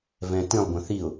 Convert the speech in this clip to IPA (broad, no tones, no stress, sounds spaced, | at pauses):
v ɛ̃ t ĩ lˠ ɡʷ ə̃ θ i ʊ̯